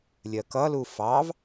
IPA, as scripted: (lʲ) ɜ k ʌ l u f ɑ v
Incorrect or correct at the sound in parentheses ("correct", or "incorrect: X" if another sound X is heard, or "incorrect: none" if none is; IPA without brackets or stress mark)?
correct